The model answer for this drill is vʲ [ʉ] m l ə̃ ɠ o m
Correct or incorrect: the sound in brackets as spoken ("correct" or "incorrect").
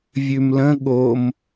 correct